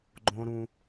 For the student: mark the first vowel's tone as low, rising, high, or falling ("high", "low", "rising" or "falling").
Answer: high